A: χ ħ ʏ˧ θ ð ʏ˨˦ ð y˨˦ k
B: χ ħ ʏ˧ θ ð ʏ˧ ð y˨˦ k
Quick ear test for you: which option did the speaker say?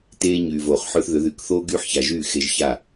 A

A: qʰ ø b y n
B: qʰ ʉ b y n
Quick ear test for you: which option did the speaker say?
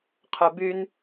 B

